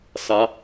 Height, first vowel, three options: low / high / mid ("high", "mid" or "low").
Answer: low